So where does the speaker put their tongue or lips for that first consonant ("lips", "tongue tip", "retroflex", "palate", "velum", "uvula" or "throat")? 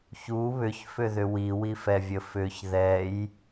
palate